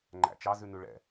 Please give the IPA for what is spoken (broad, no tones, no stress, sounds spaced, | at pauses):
ŋ͡ǃ æ̰ t͡ʃ ɑ z ʉ n ʉ ɭ ɛ̰